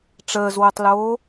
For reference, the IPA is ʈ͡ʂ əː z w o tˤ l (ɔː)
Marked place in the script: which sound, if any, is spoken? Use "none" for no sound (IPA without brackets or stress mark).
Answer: oː